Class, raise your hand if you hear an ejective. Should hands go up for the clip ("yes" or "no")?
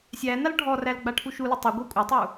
yes